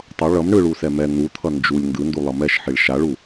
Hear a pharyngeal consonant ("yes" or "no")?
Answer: yes